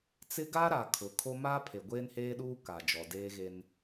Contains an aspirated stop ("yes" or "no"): yes